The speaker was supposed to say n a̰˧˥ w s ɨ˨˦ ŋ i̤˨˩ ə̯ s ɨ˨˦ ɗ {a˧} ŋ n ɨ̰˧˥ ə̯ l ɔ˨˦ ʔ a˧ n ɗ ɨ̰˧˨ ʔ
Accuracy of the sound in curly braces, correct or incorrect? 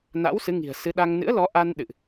correct